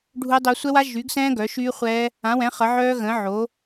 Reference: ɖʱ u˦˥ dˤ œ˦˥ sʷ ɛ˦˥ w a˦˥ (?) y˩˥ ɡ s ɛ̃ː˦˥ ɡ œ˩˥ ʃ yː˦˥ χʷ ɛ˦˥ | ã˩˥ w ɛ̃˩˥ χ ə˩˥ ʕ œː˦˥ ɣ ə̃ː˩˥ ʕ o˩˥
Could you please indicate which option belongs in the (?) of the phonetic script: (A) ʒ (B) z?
A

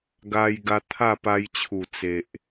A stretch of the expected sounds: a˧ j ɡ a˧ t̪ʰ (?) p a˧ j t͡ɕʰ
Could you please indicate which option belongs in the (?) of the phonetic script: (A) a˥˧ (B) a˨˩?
A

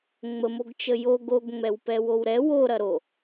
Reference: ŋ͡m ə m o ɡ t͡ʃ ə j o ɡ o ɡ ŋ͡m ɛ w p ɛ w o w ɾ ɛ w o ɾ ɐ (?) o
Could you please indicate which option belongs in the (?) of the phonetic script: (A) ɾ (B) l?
A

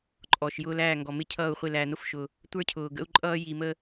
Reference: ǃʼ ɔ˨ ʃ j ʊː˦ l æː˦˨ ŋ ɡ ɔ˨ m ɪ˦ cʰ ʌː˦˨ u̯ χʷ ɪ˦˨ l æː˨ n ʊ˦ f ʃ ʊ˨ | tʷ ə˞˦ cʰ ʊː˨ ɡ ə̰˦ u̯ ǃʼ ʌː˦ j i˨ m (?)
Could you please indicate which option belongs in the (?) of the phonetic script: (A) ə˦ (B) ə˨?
A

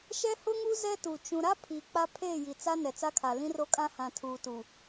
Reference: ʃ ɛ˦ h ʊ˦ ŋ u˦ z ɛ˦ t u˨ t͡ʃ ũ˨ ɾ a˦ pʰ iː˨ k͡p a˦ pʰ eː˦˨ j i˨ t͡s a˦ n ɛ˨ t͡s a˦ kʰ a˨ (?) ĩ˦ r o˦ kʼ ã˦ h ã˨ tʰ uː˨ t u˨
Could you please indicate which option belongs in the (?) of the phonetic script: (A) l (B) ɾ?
A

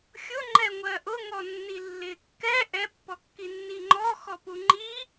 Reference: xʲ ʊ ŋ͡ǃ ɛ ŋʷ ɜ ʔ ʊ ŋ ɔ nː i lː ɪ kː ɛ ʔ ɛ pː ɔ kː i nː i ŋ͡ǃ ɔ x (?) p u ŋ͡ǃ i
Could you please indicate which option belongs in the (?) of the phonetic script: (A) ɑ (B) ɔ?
B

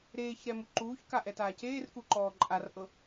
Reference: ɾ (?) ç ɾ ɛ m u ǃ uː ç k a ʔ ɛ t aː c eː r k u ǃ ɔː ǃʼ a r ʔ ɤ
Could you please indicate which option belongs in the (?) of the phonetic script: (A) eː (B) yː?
A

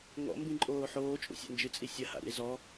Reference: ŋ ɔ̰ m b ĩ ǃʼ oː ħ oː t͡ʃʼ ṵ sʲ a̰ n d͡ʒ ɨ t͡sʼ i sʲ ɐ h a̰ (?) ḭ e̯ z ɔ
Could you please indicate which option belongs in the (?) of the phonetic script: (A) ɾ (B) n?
A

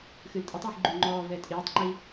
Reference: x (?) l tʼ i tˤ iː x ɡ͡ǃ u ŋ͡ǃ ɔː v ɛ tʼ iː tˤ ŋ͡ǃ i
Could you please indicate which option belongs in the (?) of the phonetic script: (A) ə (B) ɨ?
B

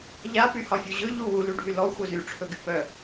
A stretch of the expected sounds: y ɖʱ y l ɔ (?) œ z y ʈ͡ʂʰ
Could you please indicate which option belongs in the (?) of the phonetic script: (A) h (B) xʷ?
B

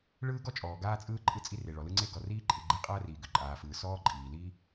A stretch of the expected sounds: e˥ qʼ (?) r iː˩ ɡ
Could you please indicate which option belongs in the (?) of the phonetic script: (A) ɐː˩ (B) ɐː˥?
B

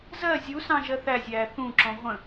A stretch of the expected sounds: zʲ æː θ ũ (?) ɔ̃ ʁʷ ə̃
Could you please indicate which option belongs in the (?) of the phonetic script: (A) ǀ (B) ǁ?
B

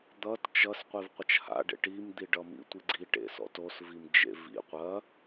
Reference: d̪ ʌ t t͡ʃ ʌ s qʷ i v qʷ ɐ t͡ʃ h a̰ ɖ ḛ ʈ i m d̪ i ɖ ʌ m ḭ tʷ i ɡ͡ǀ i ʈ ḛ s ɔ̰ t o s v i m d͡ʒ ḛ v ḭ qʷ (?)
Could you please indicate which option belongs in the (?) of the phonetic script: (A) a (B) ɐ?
B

